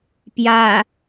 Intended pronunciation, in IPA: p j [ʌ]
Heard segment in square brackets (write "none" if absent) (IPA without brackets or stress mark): a